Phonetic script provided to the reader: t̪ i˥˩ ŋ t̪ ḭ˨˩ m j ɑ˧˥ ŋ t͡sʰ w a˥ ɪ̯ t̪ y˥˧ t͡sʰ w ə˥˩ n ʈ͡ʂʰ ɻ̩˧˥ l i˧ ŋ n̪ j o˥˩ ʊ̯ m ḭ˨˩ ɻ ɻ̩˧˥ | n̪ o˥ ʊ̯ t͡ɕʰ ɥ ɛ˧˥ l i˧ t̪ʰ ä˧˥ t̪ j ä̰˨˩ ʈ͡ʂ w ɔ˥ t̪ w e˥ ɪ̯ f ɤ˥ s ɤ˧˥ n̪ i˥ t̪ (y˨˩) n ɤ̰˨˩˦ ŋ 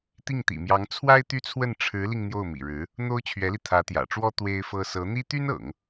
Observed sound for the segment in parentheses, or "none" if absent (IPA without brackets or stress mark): y˥